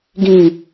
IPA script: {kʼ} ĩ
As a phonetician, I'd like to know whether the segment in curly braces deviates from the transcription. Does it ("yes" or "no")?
yes